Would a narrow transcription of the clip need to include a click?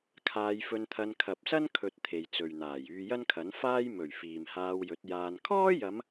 no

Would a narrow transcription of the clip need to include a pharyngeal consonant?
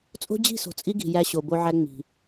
yes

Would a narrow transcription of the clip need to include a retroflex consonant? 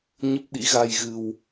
no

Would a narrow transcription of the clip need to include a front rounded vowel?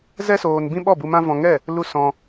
no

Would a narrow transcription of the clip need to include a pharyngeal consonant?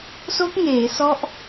no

